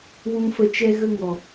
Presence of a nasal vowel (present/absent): present